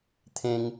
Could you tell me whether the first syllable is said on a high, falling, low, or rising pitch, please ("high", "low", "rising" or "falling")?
high